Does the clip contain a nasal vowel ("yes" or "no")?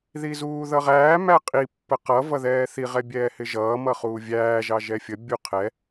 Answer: no